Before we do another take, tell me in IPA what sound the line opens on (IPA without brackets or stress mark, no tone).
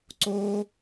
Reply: ǀ